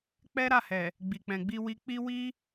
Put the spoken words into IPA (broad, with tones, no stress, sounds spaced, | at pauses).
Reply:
k͡p ɛ˦ ɾ a˦˨ h ɛ˨ | ɡ͡b i˨ k͡p ɛ̃˨ ɡ͡b i˧ w i˧ k͡p i˦ w i˦